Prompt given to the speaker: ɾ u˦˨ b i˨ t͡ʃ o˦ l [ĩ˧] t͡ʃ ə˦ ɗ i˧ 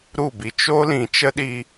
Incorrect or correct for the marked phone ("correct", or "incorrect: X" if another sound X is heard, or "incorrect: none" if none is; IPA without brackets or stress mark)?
incorrect: ĩ˨